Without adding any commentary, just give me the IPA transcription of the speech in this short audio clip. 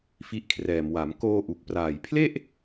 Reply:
f i˦˥ ʔ kʰ r ɛː˨˩ m w a˩˦ m k oː˧ ʔ u˨˩ k̚ p r aː˨˩ j pʰ l e˥˩ ʔ

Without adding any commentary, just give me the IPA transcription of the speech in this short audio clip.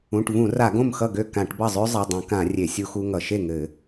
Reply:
ũ˩˧˩ ʈ v ũ˧˩˧ r a˧˩˧ ɡ õ˥˩ m x ʌ˥˩ ɡ ø˥˩ k ã˧˩˧ ʈ b ʌ˥˩ zˤ ø˥ zˤ ʌ˩˧˩ dˤ ũ˧˩˧ k ã˧˩˧ rʲ e˧˩˧ sʲ u˥ x u˥ ŋ ʌ˧˩˧ ʃ e˥˩ ŋ ɘ˧˩˧

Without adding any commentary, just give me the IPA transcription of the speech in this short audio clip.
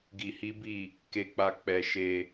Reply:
ɡ i˧ h i˦ b i˦˨ | k e˧ k͡p a˧ k͡p ɛ˧ ʃ e˧

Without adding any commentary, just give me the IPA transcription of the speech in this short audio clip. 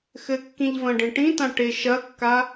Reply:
x ɘ kː ĩ ʎ v ɐ̃ ɖ ẽ ʈ ĩ t ã ʈ e ʃ ɐ kː a

